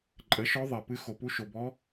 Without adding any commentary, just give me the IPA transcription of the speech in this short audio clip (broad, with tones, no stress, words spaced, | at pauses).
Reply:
ǃʼə˩˥ʃɔ˧˥ ðˤe˩pɨ˧˥ xo˩ pu˧˥ʃo˩bɔ˧˥